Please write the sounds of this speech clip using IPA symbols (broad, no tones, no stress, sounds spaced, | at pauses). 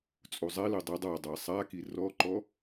t͡sʼ u zˤ ɛ l ɨ dˤ i dˤ a dˤ ɛ sˤ a k i r ɔ ǃ ɔ